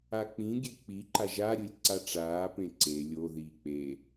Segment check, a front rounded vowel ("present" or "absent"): absent